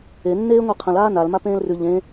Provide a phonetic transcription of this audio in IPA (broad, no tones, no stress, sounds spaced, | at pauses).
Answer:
e nː eː ŋʷ e qʰ ə̃ l aː n a l m a p ẽː l r ʉ ʎ ẽ